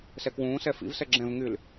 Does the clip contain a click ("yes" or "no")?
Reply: yes